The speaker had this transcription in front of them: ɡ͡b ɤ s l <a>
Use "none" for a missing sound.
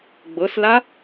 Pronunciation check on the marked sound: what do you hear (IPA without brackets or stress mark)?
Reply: a